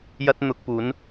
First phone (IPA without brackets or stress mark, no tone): j